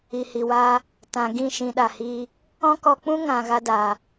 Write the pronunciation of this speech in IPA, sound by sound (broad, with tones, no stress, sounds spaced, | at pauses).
i˨ h i˨ w aː˦ | t ã˨ ɡ ĩ˦˨ ʃ ĩ˧ ɗ a˨ h iː˦ | ɔ̃˦ k ɔ˧ k͡p ũ˦ ŋ ã˨ ɣ a˧ d aː˨